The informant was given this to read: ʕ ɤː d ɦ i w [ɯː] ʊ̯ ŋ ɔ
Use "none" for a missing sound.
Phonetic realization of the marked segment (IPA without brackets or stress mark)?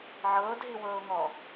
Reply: ɤː